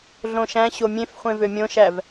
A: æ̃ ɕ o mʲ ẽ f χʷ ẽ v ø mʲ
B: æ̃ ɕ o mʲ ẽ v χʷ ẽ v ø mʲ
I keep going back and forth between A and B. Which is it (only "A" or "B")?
A